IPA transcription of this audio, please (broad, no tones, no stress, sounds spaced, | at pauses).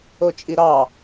o t͡ʃʼ i ɾ ɑ